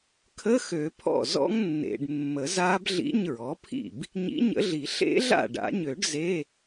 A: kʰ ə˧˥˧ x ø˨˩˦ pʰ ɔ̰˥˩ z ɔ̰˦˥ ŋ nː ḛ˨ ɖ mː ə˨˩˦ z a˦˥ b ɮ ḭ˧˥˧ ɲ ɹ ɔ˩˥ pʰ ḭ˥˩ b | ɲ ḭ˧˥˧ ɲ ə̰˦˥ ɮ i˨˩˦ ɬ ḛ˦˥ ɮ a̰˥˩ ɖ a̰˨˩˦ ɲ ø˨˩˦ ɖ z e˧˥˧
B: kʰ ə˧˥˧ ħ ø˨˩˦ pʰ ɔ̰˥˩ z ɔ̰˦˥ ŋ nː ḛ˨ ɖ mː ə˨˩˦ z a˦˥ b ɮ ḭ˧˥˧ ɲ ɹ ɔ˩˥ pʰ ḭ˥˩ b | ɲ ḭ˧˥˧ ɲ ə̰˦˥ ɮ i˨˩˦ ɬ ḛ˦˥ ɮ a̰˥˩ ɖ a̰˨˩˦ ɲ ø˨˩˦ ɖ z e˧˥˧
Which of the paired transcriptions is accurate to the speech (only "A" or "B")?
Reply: A